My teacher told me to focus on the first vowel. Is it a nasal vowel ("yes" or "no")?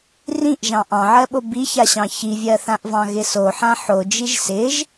yes